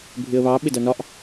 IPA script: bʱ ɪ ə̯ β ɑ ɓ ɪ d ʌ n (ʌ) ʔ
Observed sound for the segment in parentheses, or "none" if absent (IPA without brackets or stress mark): ɒ